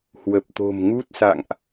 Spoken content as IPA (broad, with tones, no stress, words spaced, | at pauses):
hwə˨˩p̚t̪o̤˨˩mŋu˦˥t̚sa̰˧˨ŋʔ